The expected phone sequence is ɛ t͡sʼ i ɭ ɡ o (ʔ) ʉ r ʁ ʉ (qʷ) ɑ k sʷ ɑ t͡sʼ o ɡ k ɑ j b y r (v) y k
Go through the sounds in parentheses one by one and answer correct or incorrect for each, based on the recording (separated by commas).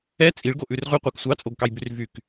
correct, correct, correct